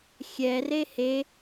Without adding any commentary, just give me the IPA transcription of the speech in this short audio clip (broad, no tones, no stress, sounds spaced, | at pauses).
xʲ ɛ r e h e